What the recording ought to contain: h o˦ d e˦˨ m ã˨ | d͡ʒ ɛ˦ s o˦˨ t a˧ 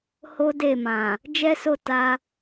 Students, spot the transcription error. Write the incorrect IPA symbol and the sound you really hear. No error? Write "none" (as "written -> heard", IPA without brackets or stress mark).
none